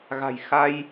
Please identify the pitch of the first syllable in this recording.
low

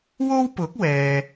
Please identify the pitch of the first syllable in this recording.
high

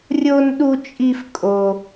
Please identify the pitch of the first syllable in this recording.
high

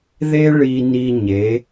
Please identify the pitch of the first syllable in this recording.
high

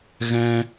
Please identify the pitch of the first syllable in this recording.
high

